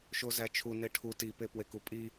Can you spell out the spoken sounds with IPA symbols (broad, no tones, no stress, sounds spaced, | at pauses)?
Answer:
ʃ o z æ t͡ʃʰ u n e ʈʰ u t i p e p w e k u pʼ i